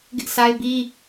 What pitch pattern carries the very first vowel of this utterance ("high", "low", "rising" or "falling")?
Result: high